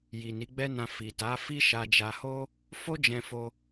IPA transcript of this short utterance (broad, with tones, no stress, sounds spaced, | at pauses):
j i˨ n i˨˦ ɡ͡b ɛ˦ n ã˧ f i˨ t a˨˦ f i˦ ʃ a˧ d͡ʒ a˧ h o˦ | f o˦ d͡ʒ ɛ̃˧ f o˦